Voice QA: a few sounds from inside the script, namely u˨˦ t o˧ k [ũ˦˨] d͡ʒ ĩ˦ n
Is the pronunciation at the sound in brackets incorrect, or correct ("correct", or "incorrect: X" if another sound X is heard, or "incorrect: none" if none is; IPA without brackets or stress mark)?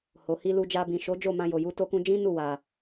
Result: incorrect: ũ˧